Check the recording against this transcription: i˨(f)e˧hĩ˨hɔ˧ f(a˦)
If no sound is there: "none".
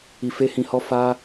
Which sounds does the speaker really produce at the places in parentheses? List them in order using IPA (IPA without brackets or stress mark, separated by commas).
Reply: f, a˧